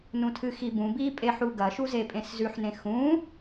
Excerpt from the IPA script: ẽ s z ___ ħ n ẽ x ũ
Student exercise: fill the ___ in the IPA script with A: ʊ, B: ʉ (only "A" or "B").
B